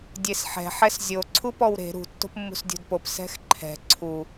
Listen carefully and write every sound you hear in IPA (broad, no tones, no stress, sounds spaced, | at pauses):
dʲ e s ħ ɛ̤ ħ ɛ s zʲ o ǀʰ u p ɔ w ɾ e̤ ɾ ṳ tː o̤ p mː ṳ s dʲ o̤ d p o p s ɛ̤ x ǃʰ ɛ̤ ǀʰ u